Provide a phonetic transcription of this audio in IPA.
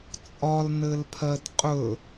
t͡sʼɒlnɘlpʰɜd qʼɵ

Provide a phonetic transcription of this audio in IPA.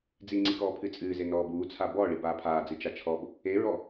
d͡ziŋ͡ǀi kɔːpʰɨt͡sʼɨːze nɔːbuːt͡sʰa bɔ ɭibaːpʰaːd͡zɨ t͡ʃat͡ʃʰɔb | eɹɔ

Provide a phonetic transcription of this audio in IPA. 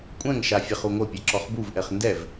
kʷʼɛ̃ŋʃa fʲaχuŋʷœpʲɛ ǁɔχbuvʔɛχ ndɛv

